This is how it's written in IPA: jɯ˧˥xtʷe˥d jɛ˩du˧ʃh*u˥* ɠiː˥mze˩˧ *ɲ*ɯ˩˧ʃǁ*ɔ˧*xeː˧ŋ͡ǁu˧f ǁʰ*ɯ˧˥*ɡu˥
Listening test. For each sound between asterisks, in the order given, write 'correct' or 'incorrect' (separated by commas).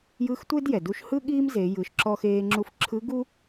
incorrect, incorrect, correct, correct